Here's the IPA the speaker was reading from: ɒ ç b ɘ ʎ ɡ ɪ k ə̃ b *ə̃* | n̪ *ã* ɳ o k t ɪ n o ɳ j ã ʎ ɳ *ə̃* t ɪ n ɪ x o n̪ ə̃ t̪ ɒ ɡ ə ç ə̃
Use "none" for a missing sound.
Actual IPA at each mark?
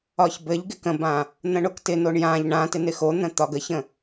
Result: ã, ə̃, ã

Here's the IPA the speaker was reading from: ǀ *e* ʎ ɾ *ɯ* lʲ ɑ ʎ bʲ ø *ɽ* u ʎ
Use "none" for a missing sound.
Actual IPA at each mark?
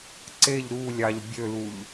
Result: e, u, l

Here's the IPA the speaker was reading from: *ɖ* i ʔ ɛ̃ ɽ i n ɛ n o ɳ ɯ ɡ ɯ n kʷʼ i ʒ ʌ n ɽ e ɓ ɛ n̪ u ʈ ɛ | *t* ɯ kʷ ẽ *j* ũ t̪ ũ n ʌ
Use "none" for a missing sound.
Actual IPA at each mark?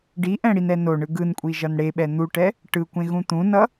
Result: ɖ, ʈ, ɣ

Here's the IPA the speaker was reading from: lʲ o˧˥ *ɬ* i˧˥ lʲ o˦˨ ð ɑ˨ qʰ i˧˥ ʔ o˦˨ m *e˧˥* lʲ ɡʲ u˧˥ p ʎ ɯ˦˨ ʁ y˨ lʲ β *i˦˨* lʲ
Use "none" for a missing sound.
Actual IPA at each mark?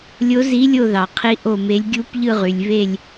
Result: z, e˧˥, e˦˨

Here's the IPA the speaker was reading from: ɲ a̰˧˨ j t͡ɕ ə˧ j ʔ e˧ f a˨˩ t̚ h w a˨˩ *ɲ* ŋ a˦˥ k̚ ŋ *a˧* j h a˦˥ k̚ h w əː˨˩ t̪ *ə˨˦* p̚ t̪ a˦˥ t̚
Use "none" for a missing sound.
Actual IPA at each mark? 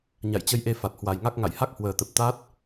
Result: j, a̰˧˨, ə˨˩

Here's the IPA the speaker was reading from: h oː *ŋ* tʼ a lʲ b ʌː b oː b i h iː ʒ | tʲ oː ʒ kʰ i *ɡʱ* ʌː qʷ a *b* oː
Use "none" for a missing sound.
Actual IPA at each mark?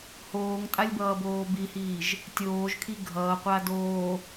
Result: ŋ, ɡʱ, d

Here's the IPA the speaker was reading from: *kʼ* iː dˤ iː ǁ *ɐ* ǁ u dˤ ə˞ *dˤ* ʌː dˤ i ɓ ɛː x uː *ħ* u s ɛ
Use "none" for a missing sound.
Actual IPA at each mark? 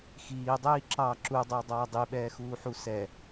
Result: x, ɑ, dˤ, ħ

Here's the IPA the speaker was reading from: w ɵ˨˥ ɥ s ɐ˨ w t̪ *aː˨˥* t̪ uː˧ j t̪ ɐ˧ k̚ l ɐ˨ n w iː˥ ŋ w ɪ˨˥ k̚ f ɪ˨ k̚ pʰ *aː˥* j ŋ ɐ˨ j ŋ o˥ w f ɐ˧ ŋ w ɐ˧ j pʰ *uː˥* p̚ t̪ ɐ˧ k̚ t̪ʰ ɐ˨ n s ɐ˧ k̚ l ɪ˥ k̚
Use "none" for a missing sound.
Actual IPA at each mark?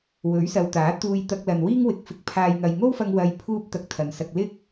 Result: aː˨˥, aː˨, uː˥

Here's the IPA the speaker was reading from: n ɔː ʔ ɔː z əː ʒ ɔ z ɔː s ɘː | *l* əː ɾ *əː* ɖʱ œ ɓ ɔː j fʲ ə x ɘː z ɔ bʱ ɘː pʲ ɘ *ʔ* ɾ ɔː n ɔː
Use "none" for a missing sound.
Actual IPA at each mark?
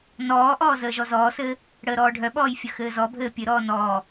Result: ɽ, ɔː, none

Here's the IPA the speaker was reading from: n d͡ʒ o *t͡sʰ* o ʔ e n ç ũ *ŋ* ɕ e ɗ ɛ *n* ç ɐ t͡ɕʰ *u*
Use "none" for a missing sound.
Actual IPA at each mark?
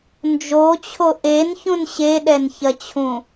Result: t͡ɕʰ, n, n, ũ

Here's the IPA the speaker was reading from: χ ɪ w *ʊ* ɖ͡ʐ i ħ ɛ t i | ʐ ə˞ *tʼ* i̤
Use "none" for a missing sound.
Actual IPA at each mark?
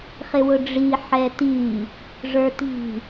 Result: ʊ, t

